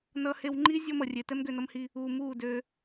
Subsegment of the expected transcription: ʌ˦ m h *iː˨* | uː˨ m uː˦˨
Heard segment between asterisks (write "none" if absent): iː˦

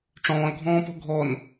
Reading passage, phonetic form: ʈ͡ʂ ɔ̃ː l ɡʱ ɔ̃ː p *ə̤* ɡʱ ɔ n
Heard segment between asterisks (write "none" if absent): ɔ̤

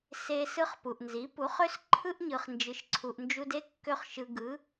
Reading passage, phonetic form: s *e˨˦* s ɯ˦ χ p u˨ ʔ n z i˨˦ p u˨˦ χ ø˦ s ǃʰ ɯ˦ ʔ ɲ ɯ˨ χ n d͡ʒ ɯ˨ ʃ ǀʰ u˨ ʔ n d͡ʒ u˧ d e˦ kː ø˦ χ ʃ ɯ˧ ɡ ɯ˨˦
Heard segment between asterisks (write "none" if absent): e˧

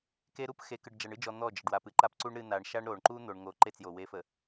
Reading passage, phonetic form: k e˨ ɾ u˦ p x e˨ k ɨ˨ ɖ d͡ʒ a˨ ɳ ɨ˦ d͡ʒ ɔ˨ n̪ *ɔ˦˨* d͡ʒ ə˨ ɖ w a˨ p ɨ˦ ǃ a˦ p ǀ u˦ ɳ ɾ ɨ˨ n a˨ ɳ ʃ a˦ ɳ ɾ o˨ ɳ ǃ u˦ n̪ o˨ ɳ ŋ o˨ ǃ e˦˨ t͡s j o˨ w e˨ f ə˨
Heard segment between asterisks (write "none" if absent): ɔ˦˨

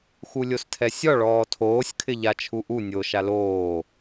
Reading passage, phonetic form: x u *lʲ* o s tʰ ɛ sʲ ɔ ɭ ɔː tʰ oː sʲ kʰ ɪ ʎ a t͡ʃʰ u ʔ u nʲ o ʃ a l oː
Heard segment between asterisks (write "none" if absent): lʲ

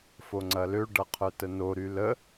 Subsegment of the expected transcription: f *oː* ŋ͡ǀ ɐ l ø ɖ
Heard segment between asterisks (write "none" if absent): o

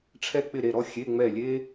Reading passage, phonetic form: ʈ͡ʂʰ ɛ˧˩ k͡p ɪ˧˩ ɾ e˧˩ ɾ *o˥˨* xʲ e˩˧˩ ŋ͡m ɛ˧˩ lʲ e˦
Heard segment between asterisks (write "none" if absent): ɔ˥˨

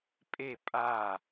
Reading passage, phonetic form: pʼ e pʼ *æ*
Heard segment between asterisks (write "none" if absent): a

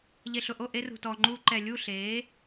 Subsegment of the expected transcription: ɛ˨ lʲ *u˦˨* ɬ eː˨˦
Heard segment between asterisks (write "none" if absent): u˦˨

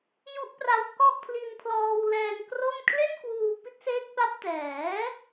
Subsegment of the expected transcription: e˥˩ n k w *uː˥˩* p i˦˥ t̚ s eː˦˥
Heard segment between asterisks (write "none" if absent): uː˧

